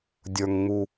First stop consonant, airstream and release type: plain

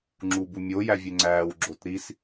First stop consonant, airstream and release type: click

